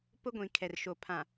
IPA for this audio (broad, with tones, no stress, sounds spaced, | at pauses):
p ʊ˦ ɡʷ ĩ˨ kʰ ɛ˨ r ʃ o˨ pʰ ã˨